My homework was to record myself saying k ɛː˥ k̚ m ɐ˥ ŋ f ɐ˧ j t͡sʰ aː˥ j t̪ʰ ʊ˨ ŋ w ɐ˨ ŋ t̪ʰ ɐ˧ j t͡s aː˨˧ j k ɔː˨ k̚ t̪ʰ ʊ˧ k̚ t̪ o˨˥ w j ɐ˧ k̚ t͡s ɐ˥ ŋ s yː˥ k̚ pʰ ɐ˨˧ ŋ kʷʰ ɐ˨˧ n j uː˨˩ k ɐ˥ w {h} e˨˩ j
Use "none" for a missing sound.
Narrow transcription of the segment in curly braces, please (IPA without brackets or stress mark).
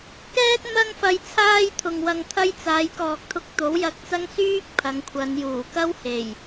h